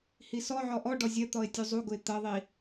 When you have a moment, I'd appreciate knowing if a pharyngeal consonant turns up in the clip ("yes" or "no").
yes